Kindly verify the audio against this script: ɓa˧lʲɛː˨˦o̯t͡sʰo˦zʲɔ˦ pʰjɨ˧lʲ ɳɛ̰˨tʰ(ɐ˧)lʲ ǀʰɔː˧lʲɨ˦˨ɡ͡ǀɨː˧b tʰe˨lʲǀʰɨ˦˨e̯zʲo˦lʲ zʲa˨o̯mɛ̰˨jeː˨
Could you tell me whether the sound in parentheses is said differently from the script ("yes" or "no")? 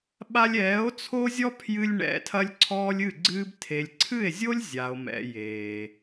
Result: no